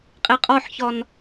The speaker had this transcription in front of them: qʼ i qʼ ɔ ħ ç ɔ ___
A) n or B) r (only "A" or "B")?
A